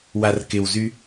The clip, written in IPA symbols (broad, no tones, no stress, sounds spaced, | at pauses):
w a r k ɪ w z y